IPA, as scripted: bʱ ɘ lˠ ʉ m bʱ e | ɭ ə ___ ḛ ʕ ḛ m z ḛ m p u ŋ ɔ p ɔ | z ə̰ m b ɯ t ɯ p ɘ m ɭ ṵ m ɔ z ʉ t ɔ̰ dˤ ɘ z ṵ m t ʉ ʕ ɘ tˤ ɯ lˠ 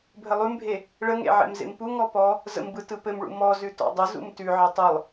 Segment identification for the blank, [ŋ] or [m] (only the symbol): ŋ